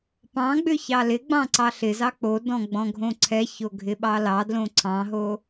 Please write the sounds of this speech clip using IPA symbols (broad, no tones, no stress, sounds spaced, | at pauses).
p ɑ̃ ɡ͡b ʏ ç ɑ l ɪ ɡ͡b ɑ̃ ǀ ɑ ɬ ɪ z ɑ k͡p o d ɔ̃ ɡ͡b ɔ̃ ɡʱ õ ǀʰ ɛ ç o ɡʱ ɪ ɓ ɑ l ɑ d l õ ǀʰ ɑ̃ ɦ o